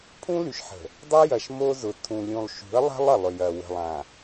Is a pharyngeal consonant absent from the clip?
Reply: no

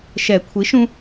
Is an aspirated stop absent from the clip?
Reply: no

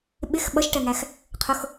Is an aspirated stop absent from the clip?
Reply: no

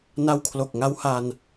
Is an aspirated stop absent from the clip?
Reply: no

